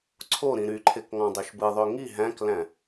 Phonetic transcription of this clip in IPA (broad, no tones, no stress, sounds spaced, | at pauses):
ǀʰ o ɾ ĩ ɾ y ǃʰ e k ŋ ɑ̃ dˤ ø ʃ b ɯ ðˤ ø ŋ i ɦ æ̃ k l æ̃